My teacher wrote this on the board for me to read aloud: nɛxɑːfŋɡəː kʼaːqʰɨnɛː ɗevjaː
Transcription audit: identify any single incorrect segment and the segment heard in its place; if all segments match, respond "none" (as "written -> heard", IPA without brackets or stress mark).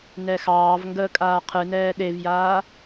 f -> v